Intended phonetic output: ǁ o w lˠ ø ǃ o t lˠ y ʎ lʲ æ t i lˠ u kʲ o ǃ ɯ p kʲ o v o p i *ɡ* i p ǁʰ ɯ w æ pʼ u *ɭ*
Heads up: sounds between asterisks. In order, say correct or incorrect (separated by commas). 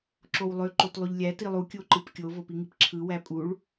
incorrect, correct